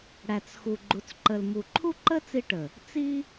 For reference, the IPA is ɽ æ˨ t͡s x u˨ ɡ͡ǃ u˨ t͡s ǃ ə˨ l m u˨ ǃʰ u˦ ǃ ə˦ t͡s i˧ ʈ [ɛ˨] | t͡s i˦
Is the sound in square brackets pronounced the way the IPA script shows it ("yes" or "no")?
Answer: no